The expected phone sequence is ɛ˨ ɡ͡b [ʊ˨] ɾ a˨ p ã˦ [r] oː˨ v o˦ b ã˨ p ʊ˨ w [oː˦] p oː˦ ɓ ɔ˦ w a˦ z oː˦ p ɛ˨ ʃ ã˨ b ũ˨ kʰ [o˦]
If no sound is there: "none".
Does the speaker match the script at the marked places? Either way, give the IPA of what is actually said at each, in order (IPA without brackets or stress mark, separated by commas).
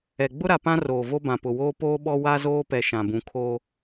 ʊ˦, r, oː˦, oː˦